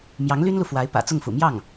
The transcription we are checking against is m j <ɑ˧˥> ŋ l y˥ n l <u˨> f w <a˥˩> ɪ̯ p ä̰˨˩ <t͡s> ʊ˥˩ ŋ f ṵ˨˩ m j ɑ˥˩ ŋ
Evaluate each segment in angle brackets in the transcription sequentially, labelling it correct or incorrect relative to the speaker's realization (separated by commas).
correct, correct, incorrect, correct